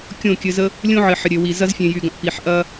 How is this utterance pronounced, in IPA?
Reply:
kʲ õ˦˨ kʲ ɘ˧ z ə˦ | lʲ õ˦ ʕ ɘ˨ ħ ə˨ ɾʲ ø˨ w i˨ z ɐ˧ z fʲ ẽ˨ j y˨ ɡ ɐ̃˨ ʔ p i˨ ħ ʔ ɐ˦

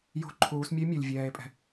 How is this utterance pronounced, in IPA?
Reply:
j o̤˧ ǃʰ uː˩˧ s mʲ ʊ˧˥ e̯ mʲ u˩ lʲ vʲ ɛː˩˧ e̯ pʼ ɛ̤˩

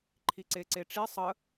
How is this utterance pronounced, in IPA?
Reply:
ǃʰ i ǀ e ǀ e ʈ͡ʂ i sˤ ə

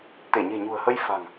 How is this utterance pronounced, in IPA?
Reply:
t̪ e˧˩ ɲ e̤˨˩ ɲ ṳ˨˩ ə̯ h ə˧ j f a̤˨˩ ŋ

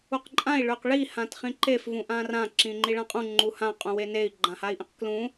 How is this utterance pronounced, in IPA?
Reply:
u q ǃʼ ã i̯ ɭ ø q ɭ i h ã t χ ĩ ǃ e f v ũ ʔ ã r ã ǁ ĩ ŋ͡ǃ i ɭ ã qʼ ũ ŋ͡ǃ u h ã qʼ ũ w e n e i̯ ɡ͡ǃ ã h a i̯ ʔ ẽ q k l ũ

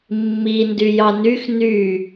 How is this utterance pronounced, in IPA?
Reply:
mː i n d y j ɑ n y x n y

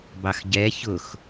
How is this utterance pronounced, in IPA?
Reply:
b ɑ x ɟ ɛ ç ʊ x

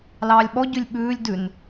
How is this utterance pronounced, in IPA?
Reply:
l ɑː lʲ ɓ ɔ ɟ ʉ lʲ ɓ ʉː lʲ d ʉ n

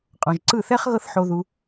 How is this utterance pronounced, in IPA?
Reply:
qʼ ɔ̃˨ ʒ ǀ ɯ˦˨ θ ɛ˦ χ ɣ ɤ˦ θ ħ o˧ ð u˧

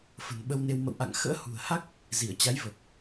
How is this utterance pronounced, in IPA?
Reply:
f ə̤˨˩ n ɓ ə˧ w n e˧ w m ə̰˧˨ w ʔ a̰˧˨ ŋ x ə̰ː˧˥ h ṳ˨˩ ə̯ h a˦˥ k̚ | z i˧˩ ə̯ t͡ɕ a˨˦ j v əː˨˩ k̚

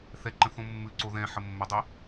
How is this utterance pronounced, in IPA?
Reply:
θ ɛ ǃ ə̃ θ õ mː ʉ ǀ o ð ɛ̃ ħ ə mː ə dˤ i

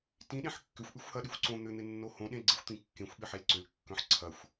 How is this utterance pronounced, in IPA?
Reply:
t ĩ ɗ ẽ ħ kː ʏ xʷ ʔ y xʷ h ɐ ɗ y xʷ ǀ õ n̪ ʏ n̪ ɪ nː o h õ ɗ ẽ l ɡ͡ǀ ə xʷ t̪ ĩ kː ẽ xʷ ɓ ɪ ħ e l ǀ ʏ l kː œ̃ ħ ǀʰ ɐ xʷ

